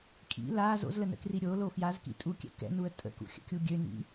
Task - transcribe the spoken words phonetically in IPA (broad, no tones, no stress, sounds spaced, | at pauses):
kʼ ḭ l a z o̰ z l ə n ə̰ k r i ɾʲ o l o f j a z k ḭ tʼ u kʲ ɛ̰ k ɛ̰ n u ə̯ tʼ ə̰ k ṵ xʲ ə̰ kʲ u ɡʲ ø n ḭ